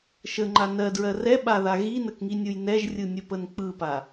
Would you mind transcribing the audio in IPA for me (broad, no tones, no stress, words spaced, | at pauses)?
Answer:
ʃəŋ͡ǃa nɜdɹɜ rɛɓaða ɣinəkŋinʲɯj nɛʒrʲɯnʲəpən k͡pɯpa